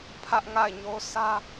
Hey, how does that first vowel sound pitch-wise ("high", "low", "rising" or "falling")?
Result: high